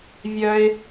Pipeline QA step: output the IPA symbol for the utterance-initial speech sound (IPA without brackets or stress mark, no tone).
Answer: vʲ